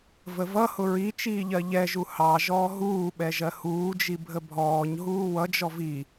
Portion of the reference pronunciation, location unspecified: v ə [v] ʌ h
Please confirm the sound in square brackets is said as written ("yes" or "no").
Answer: yes